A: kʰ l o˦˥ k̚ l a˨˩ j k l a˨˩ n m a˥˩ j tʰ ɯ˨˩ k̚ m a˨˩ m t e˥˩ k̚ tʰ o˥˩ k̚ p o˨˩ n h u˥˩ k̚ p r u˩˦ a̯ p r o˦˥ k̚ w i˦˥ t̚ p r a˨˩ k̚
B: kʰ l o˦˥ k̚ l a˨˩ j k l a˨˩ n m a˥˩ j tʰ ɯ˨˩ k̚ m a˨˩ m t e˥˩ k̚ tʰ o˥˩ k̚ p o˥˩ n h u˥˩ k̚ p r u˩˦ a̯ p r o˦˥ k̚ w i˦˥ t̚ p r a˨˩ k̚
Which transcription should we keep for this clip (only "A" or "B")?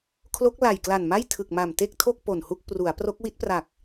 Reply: A